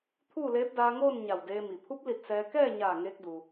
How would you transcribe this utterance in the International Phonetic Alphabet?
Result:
t̪ʰ uː˥˨ l eː˧˥ p̚ d aː˧ ŋ oː˥˨ n ɲ a˧˩ w d eː˧ m i˩ pʰ u˧˥ p̚ l i˧˩ t̚ s ɛː˧ k ɛː˥˨ ɲ aː˧˩ ŋ eː˧ k̚ d u˩

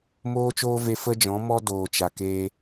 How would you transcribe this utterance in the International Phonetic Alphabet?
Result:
m oː˦ t͡ʃ oː˦ v e˧ f ə˦ d͡ʒ ɔ̃˨˦ m ɔ˦ d oː˨ t͡ʃ a˨ k eː˧

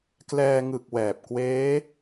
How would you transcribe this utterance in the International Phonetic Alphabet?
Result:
k l ɛː˧ ŋ ɯ˨˩ k̚ w ɛː˨˩ p̚ k w eː˦˥

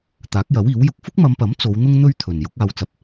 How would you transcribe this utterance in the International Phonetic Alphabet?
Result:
t̪ aː˨˥ k̚ j ɐ˨˥ w iː˨˥ w j ʊ˧ k̚ f ʊ˥ k̚ m ɐ˨˧ m p ɐ˨˥ m t͡s o˨˧ w n̪ ʊ˥ ŋ n̪ ɵ˥ ɥ t̪ʰ ɵ˨ n j ʊ˨˥ k̚ aː˧ w t͡s ɐ˧ p̚

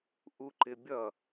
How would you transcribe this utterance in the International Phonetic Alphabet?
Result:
ʔ u ǃ ɪ bʲ ʌ

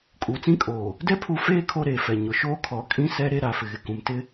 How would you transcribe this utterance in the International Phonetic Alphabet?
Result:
kʼ uː˨ t͡s ĩ˦ kʼ oː˨ | d ɛ˦ pʰ u˨˦ f eː˦ kʰ o˦ ɾ eː˨ f ɛ˨ ɲ ʊ˨ ʃ oː˦ kʰ ɔ˨˦ kʼ ĩ˦ s ɛ˦ ɾ e˦ ɾ a˨ f ɪ˨ ɣ ɪ˨ k ũ˨ m t ɪ˦

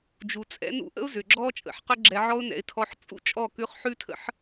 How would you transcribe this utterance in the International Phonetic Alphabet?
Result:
d͡ʒ u˨ t͡sʼ ɛ̰˧ n ṵ˦ ʔ ə̰˦ ʊ̯ z ʏ˨ ɡ͡ǁ ɔ˦ t͡ʃʼ ə̰˧ ħ q ʏ˦ ɡ͡ǁ ɛ˧ ʕ ɔ˦ ʊ̯ n ɛ̰˧ ɪ̯ tʰ ɔ˧ ħ t͡sʼ ṵ˦ t͡ʃʼ ɔ˦˨ k ʉ˧ χ ħ ʉ˦ tʰ ə̰˦ ħ

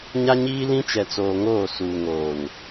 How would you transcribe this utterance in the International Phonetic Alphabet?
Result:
ɲ a˦ ɲ iː˦ l ĩ˦ t͡ʃ ɛ˨ t͡s oː˨ ŋ oː˦˨ s uː˨ ŋ oː˨ n

